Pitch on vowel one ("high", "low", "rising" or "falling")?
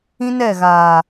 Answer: high